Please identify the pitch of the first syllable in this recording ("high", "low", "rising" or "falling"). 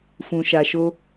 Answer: low